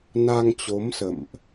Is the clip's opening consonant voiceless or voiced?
voiced